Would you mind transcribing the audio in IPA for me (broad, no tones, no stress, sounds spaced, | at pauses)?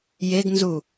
j e ɡ n z u